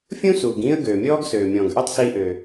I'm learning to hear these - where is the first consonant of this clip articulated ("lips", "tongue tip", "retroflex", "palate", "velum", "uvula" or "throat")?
lips